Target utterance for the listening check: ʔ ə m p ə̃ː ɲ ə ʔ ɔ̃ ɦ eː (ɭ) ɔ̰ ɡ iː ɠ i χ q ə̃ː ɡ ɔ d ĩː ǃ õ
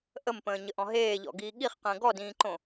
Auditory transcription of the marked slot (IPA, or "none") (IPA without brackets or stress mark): ʎ